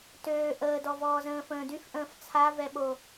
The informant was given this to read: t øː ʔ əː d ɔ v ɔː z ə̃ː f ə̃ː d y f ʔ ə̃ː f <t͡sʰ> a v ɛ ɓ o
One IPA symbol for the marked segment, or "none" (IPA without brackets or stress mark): t͡sʰ